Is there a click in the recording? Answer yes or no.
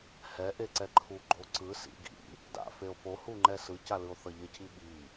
yes